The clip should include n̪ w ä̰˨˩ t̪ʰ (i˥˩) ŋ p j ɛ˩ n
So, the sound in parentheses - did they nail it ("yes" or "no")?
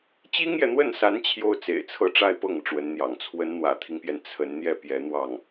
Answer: no